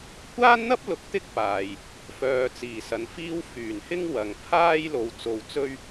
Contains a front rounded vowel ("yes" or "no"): yes